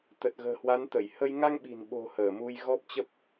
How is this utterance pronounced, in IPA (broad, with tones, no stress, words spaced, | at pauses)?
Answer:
t̪ə˨˩t̚ɣə̤ː˨˩hwa˨˦nt̪ə˧˩j hə˧j ŋa˧ŋɓi̤˨˩nɓo̤˨˩ həː˧˩mu˧jɣɔ˦˥p̚t͡ɕə˦˥p̚